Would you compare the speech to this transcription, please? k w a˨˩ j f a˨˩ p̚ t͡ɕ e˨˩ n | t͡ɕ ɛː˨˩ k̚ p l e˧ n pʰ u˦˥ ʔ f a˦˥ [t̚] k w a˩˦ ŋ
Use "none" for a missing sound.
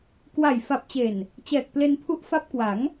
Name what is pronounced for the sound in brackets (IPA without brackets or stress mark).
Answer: p̚